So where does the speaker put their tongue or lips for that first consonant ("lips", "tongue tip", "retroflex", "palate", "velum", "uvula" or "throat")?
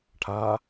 retroflex